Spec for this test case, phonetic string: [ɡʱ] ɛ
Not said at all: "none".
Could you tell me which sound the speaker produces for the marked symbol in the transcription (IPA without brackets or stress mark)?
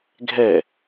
ɡʱ